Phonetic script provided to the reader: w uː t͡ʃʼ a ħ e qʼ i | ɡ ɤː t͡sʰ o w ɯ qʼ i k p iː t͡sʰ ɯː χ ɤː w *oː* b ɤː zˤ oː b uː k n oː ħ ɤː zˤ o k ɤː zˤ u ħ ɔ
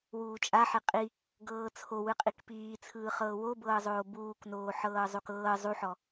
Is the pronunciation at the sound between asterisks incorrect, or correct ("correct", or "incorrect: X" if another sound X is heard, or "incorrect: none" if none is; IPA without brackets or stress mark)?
incorrect: o